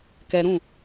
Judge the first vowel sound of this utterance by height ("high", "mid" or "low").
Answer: mid